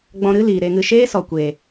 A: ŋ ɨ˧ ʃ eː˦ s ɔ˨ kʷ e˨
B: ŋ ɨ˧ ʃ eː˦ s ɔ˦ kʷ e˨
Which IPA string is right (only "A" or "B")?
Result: A